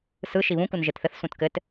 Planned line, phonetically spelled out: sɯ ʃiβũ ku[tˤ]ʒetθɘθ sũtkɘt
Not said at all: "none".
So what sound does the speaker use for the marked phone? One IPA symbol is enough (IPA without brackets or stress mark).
n